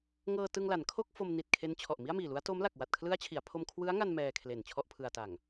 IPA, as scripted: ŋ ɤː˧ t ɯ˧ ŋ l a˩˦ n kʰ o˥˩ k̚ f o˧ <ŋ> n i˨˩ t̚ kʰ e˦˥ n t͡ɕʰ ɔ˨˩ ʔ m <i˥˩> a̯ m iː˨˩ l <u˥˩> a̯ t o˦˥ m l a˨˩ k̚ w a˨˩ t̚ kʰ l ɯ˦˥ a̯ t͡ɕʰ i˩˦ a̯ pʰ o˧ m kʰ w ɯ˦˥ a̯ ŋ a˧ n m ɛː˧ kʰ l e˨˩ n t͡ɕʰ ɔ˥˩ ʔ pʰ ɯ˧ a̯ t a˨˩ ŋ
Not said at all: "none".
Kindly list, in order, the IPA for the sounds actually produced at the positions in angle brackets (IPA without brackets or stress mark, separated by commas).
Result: m, i˥˩, u˦˥